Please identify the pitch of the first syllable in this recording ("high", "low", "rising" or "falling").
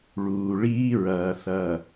low